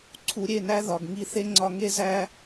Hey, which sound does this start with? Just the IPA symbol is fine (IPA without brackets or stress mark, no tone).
ǀʰ